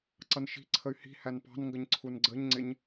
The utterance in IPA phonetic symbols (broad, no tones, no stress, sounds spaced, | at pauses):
ǀ ʌ n ʃ i̤ ǀʰ ə y̯ h i̤ h æ n p ɑ̤ n ŋ ɡ ə ɲ ǀʰ u n ɡ͡ǀ ə ɲ ŋ͡ǀ ɪ ɲ